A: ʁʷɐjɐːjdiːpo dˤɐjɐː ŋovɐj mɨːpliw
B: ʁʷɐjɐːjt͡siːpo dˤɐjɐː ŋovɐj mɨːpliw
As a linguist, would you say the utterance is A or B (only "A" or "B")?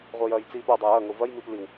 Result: B